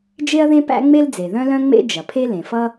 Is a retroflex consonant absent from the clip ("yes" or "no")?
yes